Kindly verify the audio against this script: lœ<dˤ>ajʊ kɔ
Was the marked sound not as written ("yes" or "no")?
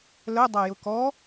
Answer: no